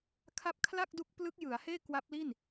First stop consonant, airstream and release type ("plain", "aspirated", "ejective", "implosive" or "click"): aspirated